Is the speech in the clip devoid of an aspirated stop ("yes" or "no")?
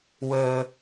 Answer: yes